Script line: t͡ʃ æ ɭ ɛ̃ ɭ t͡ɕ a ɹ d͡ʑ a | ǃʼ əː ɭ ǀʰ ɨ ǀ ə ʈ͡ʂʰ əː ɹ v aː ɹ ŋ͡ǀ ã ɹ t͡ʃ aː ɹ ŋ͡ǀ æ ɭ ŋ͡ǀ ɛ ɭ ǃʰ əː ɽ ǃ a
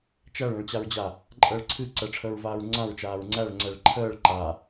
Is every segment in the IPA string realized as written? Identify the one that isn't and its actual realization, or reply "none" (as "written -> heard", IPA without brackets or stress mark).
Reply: ɽ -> ɭ